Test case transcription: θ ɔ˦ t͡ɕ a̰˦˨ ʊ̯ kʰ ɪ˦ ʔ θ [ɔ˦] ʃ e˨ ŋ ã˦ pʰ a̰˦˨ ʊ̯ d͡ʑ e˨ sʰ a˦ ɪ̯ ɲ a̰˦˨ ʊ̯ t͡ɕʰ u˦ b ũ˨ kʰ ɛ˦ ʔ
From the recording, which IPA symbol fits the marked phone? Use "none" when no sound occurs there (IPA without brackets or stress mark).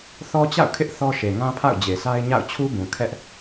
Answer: ɔ˦